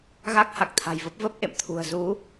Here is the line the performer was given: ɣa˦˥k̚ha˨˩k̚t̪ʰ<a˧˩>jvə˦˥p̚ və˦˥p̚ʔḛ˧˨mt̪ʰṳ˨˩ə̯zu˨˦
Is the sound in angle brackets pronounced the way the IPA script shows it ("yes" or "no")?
no